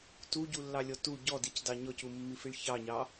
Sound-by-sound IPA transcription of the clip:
t u ɟ u lː ɑ lʲ ɔ t u ɟ ɔ d i c d ɑ ɲ ɔ c u mː i f i ɭ ç ɑ ɲ ɑ

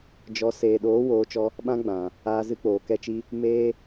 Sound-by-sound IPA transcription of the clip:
d͡ʒ ɔ˨˦ s eː˨ ɗ oː˨˦ w oː˨˦ t͡ʃ ɔ˧ | ɓ ã˦ ɡ͡b ã˨ | aː˧ z ɨ˧ k͡p oː˨ k ɛ˧ t͡ʃ i˧ | m eː˦

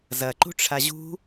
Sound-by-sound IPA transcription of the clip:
z ɐ ǃ ṳ ʈ͡ʂʰ a ʑ ṳ

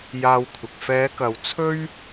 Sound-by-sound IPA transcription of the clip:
j aː˧ w kʷʰ ɪ˨ k̚ f ɛː˨˧ k ɐ˨ w t͡sʰ ɵ˥ ɥ

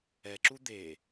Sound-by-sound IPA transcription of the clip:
ɛ ǁ u d̪ e

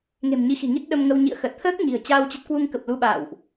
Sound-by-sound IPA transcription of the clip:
ŋ e̤˨˩ m ɲ i˨˦ x i̤˨˩ ŋ i˦˥ t̚ ɗ ə˧ m ŋ ə˧ w ɲ ḭ˧˨ ə̯ x ə˨˩ t̚ t̪ʰ əː˦˥ k̚ ɲ i̤˨˩ ə̯ t͡ɕ aː˧ w t͡ɕ ə˦˥ t̚ k w u˧ ŋ k ə˨˩ p̚ l u˧ ɓ a̰ː˧˨ w ʔ

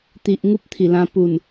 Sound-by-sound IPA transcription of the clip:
t̪ i˨ ʔ ŋ u˦ p̚ t̪ʰ i˨˩ l ã˧ p u˨˩ n

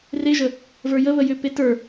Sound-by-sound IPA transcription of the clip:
r e ʒ ə | v ə˞ j ə β ə j ʏ p e t ə˞

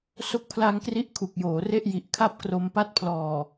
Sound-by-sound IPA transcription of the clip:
s o˦˥ k̚ pʰ l a˧ ŋ k r i˦˥ ʔ kʰ u˨˩ k̚ j oː˩˦ r e˥˩ ʔ j i˨˩ ʔ kʰ a˥˩ p̚ k r o˧ m p a˦˥ t̚ pʰ l ɔː˨˩

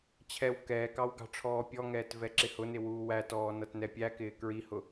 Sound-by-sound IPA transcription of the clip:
t͡ɕʰ ɛ w k ɛː k ɑ w ɡ ɑ̤ ʈ͡ʂʰ ɔː pʲ ɔ ŋ ɛː t v ɛ ǁ ɪ h ʊ n ɪ w uː w æ t ɔː n ʌ t n ɛ pʲ æ k ɪː k ɹ i h ʊ

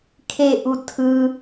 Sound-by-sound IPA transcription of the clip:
kʰ e ʔ u tʰ ɯ

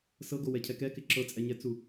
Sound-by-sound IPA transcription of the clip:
s ɤ ɡ o w ɛ cʰ ɛ k ɛ k ɪ ǁ ɤ t͡sʼ ɛ ɲ ɛ t͡s u

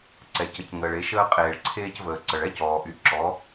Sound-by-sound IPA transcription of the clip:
ǀ ɛ˩ c ə˩˧ c ŋ əː˩ ɭ e˩˧ ʃ əː˧ qʼ eː˩ ɭ ǀʰ eː˧ c v əː˩ ǀ ə˩ ɭ ɛ˥ c ɔː˩ ʔ y˩˧ ǁ ɔ˩˧

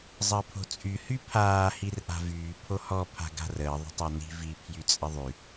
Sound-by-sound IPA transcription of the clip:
zˤ əː pʰ o̤ t͡sʼ y h y pʰ aː h i r ʔ a̤ v yː pʰ o h ɔ pʰ a̤ ɡ a̤ r əː ðˤ ə̤ tˤ a n i̤ v i pʰ j y t͡sʼ ə ðˤ y

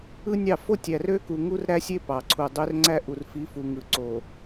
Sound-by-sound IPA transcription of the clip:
ɯ˦ nʲ ɑ˦˨ f o˦ tʲ æ˨ r ø˦ k u˨ ŋ u˦ r ɾ æ˦ sʲ e˦ p ɑ˨ ǀʰ u˨ dˤ ø˦ r ŋ͡ǀ æ˦ ʔ u˨ r f i˨˦ f u˨ ŋ ɯ˨ ǀ o˨

